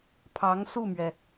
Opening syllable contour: rising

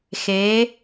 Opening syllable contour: rising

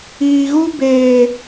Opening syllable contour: low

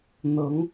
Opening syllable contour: rising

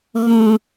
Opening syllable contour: low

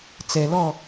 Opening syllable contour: low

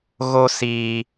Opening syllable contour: high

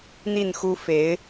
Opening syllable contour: falling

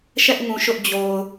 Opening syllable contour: high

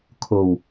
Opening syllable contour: low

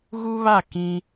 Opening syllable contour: high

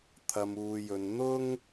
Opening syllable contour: low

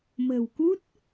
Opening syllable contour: low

